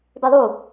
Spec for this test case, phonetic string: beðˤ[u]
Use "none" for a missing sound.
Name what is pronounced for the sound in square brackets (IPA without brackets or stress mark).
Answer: u